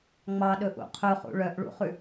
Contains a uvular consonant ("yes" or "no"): yes